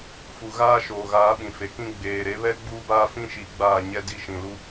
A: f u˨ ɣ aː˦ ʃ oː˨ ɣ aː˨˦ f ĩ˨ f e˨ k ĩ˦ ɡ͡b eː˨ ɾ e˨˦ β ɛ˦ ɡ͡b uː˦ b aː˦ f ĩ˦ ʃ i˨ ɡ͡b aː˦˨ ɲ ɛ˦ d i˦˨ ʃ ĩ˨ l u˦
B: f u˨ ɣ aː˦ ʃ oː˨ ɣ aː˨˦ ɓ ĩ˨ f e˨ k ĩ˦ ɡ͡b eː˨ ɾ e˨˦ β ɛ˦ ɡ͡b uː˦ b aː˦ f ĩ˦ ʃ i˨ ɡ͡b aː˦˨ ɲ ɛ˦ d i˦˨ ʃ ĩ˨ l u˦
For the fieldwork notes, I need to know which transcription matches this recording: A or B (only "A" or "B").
B